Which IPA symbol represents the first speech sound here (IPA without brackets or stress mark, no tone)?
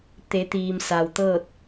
t̪